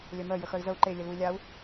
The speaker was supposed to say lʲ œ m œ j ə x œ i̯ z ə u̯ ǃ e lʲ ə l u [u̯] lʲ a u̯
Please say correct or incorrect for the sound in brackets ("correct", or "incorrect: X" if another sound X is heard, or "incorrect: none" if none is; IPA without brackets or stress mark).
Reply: incorrect: i̯